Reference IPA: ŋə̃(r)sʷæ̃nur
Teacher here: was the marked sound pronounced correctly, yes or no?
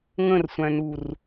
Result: yes